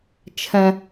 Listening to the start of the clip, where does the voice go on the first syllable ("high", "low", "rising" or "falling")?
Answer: high